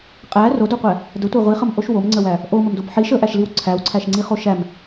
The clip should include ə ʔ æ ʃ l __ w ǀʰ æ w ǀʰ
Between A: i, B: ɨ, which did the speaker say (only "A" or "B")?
A